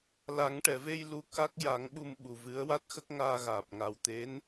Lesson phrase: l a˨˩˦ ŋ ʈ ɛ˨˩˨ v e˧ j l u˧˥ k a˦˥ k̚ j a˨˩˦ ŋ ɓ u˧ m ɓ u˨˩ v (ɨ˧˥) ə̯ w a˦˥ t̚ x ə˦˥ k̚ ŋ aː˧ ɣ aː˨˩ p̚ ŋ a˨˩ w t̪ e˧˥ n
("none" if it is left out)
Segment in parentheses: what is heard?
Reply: ɨ˧˥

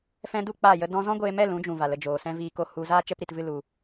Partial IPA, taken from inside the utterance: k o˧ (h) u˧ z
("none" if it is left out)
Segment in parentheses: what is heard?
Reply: h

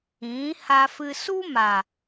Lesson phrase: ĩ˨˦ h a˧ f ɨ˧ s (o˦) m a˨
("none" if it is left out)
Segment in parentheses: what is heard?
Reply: u˦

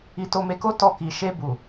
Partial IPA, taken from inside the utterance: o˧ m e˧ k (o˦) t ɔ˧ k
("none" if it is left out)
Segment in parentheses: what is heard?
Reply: o˦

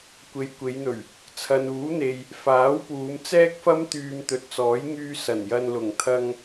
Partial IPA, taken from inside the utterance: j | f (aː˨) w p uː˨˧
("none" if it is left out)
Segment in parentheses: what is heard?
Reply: aː˨˥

